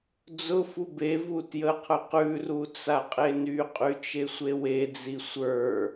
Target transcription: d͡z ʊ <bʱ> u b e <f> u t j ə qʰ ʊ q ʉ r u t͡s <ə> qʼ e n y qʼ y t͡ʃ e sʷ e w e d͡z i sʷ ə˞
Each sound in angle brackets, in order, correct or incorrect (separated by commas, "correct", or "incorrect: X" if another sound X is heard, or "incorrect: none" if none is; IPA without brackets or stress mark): incorrect: f, incorrect: v, incorrect: a